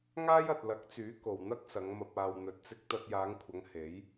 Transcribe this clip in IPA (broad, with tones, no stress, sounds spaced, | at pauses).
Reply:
ŋ aː˥ j ɐ˨ t̚ l ɐ˨˥ k̚ t͡s yː˨˥ k o˨ w n̪ ɐ˥ k̚ s ɐ˨˧ ŋ m ɐ˧ p̚ aː˧ w n̪ ɵ˧ t̚ t͡s ɪ˥ k̚ t̪ ɐ˧ t̚ j aː˨˧ ŋ kʷʰ ɐ˨˧ ŋ h e˨˥ j